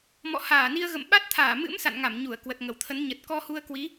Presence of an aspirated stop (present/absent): present